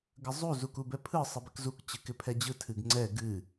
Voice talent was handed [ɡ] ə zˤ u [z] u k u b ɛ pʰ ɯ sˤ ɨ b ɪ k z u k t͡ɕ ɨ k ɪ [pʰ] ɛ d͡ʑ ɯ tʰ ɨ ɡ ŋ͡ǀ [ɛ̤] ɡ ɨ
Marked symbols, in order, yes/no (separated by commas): yes, yes, yes, no